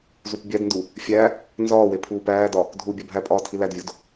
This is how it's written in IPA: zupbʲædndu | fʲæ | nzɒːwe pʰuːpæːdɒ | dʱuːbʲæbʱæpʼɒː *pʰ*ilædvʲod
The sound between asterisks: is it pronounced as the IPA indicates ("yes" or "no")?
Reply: no